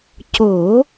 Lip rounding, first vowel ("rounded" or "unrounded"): rounded